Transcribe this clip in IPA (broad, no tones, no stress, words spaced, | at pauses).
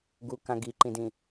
ɡukã ɡiǃĩdĩ